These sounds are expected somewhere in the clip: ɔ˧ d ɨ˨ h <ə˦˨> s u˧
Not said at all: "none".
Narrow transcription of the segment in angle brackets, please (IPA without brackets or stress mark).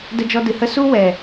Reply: ə˦